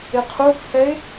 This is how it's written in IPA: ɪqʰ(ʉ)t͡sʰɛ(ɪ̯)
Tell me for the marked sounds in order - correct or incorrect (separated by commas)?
incorrect, correct